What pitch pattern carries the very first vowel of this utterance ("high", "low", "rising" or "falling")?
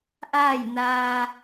falling